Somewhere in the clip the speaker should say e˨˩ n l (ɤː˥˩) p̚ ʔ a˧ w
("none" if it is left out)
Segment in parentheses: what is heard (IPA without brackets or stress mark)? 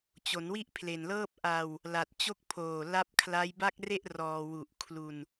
ɤː˥˩